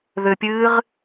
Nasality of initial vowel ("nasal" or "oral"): oral